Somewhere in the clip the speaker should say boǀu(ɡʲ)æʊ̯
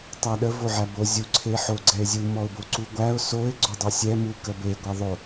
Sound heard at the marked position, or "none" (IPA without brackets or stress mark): ɡʷ